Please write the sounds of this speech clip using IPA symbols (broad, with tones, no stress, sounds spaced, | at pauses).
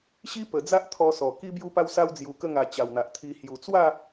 ɕ i˦ p ə˨˩ d͡z a˦ ʔ t̪ʰ ɔ˧ s ɔ˨˩ k i˧ b j u˧ p a˧ w s a˧ w d͡z j u˨˩ k ə˧ ŋ a˨˩ t͡ɕ a˨˩ w n̪ a˨ ʔ t̪ʰ i˧ h j u˨˩ t͡s w a˥˧